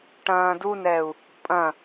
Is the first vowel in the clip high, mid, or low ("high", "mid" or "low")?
low